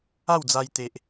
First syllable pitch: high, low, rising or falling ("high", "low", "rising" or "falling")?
falling